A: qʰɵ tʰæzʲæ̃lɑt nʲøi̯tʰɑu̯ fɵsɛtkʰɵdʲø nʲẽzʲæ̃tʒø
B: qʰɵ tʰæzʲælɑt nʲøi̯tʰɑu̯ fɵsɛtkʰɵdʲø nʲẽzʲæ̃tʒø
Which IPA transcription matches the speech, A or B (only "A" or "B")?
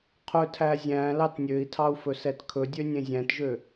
A